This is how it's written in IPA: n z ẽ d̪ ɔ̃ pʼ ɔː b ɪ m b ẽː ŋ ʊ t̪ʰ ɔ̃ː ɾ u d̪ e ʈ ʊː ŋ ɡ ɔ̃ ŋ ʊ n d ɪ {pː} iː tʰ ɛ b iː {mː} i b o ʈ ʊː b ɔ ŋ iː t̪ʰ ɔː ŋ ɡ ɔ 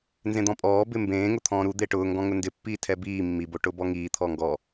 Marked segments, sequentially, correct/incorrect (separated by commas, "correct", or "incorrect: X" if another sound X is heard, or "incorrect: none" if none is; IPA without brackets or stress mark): correct, correct